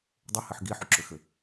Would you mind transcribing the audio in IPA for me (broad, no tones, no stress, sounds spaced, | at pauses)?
dˤ e h ɘ ħ ɡ i ħ u ǁ ʏ x ɘ